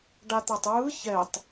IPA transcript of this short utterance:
ɖ a t̪ a tˤ ɹ ɯ ç ɛ tˤ

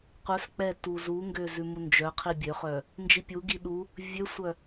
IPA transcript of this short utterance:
qʷ œ s k͡p ɛ t u z u ŋ ɡ ø z ʉ m u n d͡ʒ œ qʰ i bʲ ø χ œ | n d͡ʒ i pʲ u ɡ i ɗ u | vʲ ø sʷ œ

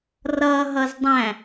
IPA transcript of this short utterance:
r ʌ ɦ ʌ z dˤ æ̃

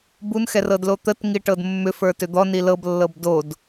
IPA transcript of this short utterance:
b u n x ɛ r ɤ d l o t̪ ə t ŋ i ʈ ɤ d mː ʏ f ə˞ t ʏ d̪ ɔ n i l ɤ b lː ɤ b d o d

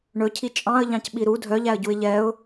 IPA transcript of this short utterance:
ɳ ɵ cʰ i t͡ʃʼ ɑ̃ ə̯ ʎ ɑ̃ c ɓ i ɾ u dʱ œ ʎ æ ə̯ ɟ u ɪ̯ ʎ ɛ ʊ̯

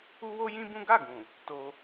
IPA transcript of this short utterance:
u˦ w o˦ j ĩ˦ b ũ˦ ɡ a˦˨ ɡ ũ˨ | t o˧

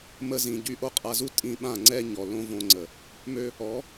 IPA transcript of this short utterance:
m ə˧ z ĩ˨ ɟ y˧ ʔ o˦ qʼ a˧ z u˦ tʼ ĩ˧ ɓ ã˦˨ ŋ͡ǀ ɛ˦ ɲ ɔ˨ l õ˦ v õ˧ ŋ͡ǀ ə˨ | m ø˦ | ɔ˨˦

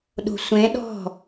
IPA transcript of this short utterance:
ɗ o̤ sʷ ẽ ɗ ɔ̤

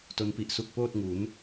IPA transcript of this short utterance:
t o˦˥ n p i˨˩ ʔ s u˦˥ k̚ p oː˥˩ t̚ ŋ u˩˦ n

